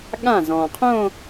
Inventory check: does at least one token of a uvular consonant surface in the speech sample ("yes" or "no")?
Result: yes